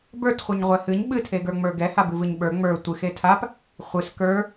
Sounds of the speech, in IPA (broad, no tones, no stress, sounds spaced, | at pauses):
b ə˞ t χʷ ɨ ɲ ʁʷ ɛ h ɨ ɲ ɓ ɨ tʰ e ɡ ə˞ ŋ͡m ə˞ ɡ ɛ h a b ɨ v ɨ ɲ ɓ ə˞ ŋ͡m ə˞ tʷ ɨ x e tʰ a p | χʷ ɨ s k ə˞